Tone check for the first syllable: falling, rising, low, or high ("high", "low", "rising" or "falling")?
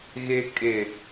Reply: low